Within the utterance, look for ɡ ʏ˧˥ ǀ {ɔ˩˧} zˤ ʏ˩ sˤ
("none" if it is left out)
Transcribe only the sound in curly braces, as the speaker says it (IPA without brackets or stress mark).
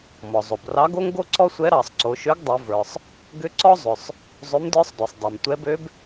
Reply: ɔ˥